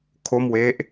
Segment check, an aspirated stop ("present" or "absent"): present